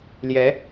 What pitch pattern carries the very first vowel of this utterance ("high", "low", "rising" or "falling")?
rising